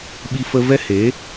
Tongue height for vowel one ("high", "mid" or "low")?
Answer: high